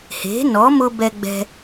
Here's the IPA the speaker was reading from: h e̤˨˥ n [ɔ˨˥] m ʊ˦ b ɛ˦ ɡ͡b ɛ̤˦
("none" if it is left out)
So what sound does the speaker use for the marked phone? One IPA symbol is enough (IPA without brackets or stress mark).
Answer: ɔ˨˥